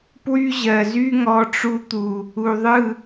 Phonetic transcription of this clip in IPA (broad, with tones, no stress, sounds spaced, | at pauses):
p w y˦ ʑ ɜ˨ z y˦ ŋ ɔ˧ ʈ͡ʂ u˧ t̪ u˨ | u˨ ðˤ ɯ˦˨